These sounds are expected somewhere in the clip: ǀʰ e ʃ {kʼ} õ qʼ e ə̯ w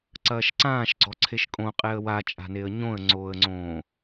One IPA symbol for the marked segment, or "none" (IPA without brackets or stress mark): kʼ